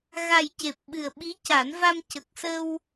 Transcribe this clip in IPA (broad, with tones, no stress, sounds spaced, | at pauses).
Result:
ɣ a˨˩ j c e˨˩ p̚ ɓ ɨ˨˩ ə̯ ɓ i˧˥ c a˨˩˦ n v a˧ m c ə˨˩ k̚ s ə˧ w